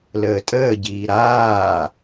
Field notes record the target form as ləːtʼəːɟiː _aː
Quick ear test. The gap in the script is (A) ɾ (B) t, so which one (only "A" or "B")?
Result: A